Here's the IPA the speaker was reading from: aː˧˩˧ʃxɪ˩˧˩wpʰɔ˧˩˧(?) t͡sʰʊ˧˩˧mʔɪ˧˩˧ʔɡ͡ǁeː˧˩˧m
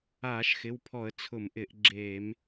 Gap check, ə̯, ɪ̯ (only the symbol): ə̯